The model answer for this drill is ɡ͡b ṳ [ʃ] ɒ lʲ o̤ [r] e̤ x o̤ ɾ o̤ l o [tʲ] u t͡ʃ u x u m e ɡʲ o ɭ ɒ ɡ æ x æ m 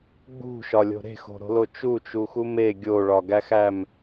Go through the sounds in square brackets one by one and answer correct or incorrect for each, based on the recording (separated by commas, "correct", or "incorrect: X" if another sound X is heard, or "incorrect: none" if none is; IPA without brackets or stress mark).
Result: correct, incorrect: ɾ, incorrect: t͡ʃ